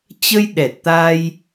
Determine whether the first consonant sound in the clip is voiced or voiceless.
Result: voiceless